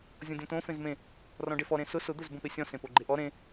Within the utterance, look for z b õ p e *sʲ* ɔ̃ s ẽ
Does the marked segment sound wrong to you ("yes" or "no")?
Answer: no